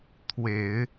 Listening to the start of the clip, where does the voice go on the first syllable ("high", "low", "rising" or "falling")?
low